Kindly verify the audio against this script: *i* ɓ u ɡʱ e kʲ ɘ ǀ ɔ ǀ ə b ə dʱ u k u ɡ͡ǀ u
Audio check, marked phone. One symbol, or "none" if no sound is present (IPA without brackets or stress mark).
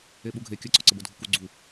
e